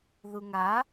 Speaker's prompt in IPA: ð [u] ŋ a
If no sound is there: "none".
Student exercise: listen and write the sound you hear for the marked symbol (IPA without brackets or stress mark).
u